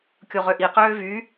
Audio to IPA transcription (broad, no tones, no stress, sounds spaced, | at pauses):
kʲ o ʁ ø ʔ i q øː v y